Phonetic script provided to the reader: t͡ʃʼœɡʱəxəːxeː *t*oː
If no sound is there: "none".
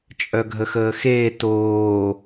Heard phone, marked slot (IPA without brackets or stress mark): t